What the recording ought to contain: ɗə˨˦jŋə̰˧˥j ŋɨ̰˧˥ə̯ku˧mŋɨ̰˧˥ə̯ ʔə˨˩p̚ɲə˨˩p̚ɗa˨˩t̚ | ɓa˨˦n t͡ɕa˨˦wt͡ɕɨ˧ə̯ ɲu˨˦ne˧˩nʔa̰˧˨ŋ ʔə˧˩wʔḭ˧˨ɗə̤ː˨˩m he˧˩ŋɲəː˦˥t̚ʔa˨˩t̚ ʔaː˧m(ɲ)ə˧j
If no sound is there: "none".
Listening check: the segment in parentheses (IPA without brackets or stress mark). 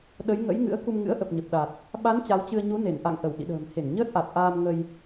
ŋ